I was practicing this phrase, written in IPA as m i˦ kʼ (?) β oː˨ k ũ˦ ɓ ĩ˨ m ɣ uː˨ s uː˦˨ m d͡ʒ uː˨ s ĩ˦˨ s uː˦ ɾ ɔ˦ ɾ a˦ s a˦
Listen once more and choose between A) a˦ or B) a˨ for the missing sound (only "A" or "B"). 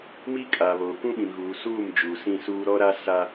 B